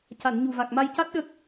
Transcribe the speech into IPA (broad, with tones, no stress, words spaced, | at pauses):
ca˨˩˨n ɲu˨˩va˨˩k̚ma˧jca˦˥t̚ ɗə˦˥k̚